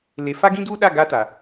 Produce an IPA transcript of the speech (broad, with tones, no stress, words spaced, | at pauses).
le˨fa˦ɡĩ˦ duː˦ɗa˦˨ ɡa˦ta˨